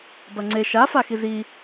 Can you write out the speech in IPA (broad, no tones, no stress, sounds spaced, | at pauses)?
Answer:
b ɐ ŋ͡ǀ e ʃ a f a x i z i